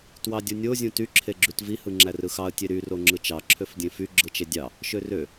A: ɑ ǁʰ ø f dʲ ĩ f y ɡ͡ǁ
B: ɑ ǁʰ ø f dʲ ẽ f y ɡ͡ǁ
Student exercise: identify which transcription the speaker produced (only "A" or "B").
B